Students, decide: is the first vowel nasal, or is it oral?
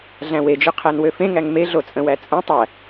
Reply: nasal